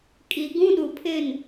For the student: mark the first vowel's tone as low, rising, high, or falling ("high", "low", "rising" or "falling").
low